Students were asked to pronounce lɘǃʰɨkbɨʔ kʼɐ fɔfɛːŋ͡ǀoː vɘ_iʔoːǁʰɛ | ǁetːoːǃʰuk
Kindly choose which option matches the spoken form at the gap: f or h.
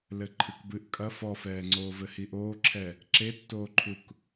h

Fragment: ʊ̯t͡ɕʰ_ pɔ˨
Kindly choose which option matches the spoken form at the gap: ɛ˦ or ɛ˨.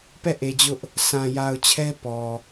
ɛ˦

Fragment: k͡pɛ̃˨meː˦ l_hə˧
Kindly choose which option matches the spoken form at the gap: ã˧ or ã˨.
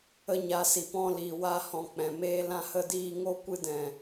ã˧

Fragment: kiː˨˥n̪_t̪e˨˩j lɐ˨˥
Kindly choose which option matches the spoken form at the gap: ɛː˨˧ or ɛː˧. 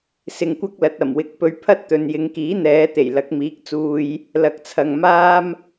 ɛː˨˧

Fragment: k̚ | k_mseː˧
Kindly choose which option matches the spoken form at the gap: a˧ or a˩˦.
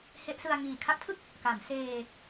a˩˦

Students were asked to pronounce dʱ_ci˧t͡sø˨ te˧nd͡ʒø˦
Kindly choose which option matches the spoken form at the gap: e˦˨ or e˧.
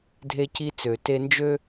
e˧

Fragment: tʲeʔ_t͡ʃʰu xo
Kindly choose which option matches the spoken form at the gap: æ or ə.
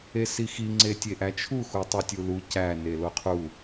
æ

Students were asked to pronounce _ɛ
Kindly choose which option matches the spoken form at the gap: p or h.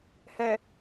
h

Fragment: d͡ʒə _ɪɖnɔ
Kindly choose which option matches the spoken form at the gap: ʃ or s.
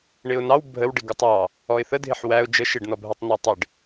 ʃ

